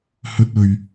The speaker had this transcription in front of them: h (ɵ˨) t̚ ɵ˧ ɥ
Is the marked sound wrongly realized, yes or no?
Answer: yes